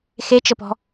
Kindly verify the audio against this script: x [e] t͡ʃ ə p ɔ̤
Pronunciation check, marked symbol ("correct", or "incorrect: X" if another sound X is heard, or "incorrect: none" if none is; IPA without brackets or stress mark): correct